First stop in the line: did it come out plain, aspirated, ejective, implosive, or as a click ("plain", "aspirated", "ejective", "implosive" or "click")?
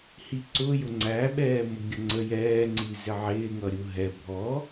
click